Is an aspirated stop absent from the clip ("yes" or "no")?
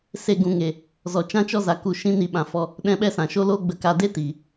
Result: yes